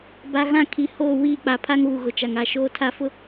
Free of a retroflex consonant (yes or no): yes